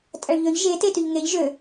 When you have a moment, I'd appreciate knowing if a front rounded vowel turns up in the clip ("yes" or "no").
yes